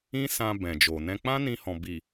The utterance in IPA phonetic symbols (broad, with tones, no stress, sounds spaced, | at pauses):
ĩ˦ s ã˧ b ɛ̃˨ d͡ʒ o˨ n ɛ̃˧ k͡p ã˦ n ĩ˧ h ɔ̃˨ b i˨